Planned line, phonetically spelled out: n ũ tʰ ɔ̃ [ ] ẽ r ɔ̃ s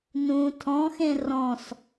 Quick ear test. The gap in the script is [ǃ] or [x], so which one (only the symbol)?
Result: x